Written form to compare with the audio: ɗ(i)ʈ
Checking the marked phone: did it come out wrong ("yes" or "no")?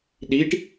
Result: no